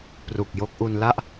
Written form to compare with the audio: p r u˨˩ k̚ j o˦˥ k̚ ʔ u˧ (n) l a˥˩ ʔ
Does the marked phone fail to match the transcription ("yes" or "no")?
no